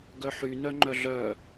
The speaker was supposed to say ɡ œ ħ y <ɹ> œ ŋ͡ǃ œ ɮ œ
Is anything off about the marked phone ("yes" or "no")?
yes